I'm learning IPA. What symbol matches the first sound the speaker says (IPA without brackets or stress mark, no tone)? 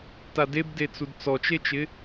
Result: t